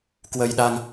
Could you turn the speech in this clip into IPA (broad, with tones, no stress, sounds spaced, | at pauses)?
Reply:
k w ə˧ j ɗ a˧ ŋ